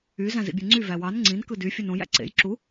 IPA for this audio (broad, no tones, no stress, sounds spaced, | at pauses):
y z æ̃ z ḭ bʲ e ŋ͡ǀ y v æ w ɑ n ŋ͡ǀ ĩ n k ɯ d y fʲ ø n õ j æ̰ ǀ ḛ j ǁ u